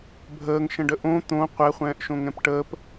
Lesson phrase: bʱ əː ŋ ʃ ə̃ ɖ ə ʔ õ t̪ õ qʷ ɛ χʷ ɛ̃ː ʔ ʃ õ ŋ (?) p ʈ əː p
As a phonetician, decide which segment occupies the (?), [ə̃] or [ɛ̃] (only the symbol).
ɛ̃